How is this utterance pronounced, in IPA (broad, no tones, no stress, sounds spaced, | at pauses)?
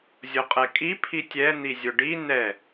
zʲ o qʼ ɛ kʼ i pʰ i tʲ ɛ n̪ i zʲ ʊ ɖ i n ɛ